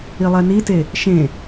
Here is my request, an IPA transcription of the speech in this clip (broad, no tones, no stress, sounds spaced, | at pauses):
i lˠ ɛ n i t e | ʃ ẽ